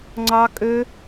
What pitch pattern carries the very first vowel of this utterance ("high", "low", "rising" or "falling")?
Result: high